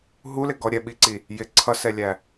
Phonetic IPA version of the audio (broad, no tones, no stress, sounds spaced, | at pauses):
ɦ u l ɪ ɡ ɔ ɾʲ ɛ ɓ i ǀ i | j ɪ ǀʰ ʌ s ɛ lʲ æ